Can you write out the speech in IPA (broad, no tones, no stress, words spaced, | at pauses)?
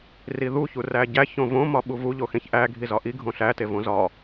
riðu çuræɟæç õvõ mɒɓuvu ʎoxẽçʔæ ɡʱizɒʔi ɡʱõɬæ tevõzɒ